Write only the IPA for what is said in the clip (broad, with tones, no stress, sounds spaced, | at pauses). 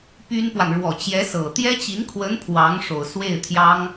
p y˥ n p w a˨ n ɻ w ɔ˨˩ t͡ɕ j ɛ˧˥ s ɤ˨˩ t̪ j ɛ˥ t͡ɕ i˧˥ n kʰ w ə˧˥ n pʰ w ɑ˧˥ ŋ ʂ o˨˩ ʊ̯ s w e˥˩ ɪ̯ t̪ʰ j ɑ˥ ŋ